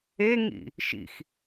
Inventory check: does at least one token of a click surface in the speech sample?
no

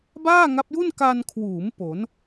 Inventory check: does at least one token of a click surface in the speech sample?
no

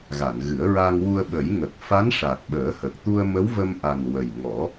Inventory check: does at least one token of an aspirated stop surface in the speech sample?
no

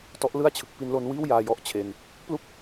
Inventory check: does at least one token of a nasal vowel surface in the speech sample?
no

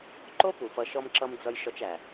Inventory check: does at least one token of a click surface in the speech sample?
yes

